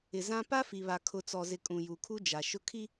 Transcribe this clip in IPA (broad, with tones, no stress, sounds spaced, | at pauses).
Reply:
ɪ˨ z ã˦ p a˦ f i˨ β a˨ kʰ ʊ˨ t͡s ɔ˨ z ɪ˨ kʼ ũ˨ j u˨ kʰ u˦ d͡ʒ a˨ ʃ ʊ˦ kʰ i˦